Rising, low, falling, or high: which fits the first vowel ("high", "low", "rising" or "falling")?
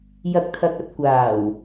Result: low